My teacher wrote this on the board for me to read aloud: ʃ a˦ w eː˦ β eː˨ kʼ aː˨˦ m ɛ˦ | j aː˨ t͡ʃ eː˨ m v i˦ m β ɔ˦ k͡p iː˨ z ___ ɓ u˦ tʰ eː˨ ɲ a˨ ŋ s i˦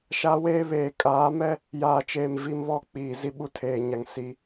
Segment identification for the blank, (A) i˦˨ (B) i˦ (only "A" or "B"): B